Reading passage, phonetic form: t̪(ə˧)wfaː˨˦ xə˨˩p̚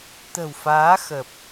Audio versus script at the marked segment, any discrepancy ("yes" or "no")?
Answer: yes